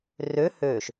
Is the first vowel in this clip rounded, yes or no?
yes